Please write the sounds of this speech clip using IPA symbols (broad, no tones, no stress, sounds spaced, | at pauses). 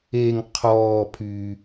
e ŋ qʰ ɔː pʰ yː